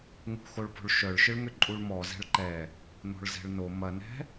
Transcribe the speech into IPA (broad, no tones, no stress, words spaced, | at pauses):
ŋṳxoɭpo̤ɭ ʃœɭʃɪɭŋʏ ǃʼuɭmɔ zɛ̤ɭǃɛ | no̤ɭzɛ̤ɭno mɐnɛ̤